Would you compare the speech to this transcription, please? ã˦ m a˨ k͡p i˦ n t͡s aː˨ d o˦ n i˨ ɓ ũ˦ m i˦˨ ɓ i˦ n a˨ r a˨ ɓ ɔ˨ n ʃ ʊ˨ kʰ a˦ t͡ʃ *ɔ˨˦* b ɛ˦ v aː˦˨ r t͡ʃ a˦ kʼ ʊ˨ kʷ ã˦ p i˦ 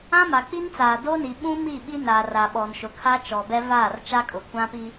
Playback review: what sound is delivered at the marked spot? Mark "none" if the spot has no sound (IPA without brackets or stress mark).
ɔ˨